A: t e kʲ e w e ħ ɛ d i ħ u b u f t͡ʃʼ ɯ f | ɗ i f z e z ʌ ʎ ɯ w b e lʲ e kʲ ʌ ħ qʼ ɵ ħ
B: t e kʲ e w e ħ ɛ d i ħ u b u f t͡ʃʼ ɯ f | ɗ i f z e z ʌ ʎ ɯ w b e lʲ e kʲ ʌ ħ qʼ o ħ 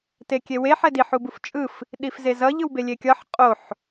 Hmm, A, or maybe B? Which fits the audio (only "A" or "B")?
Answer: B